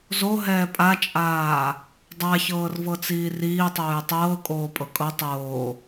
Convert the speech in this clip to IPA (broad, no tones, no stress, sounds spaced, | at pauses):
z o ɦ ɛː pʼ a t͡ʃʼ aː | dˤ a ç ɤː r v ɤ t͡s iː r iː tˤ oː j tˤ ɤː kʼ oː pʼ ɤ kʼ ɤ tˤ oː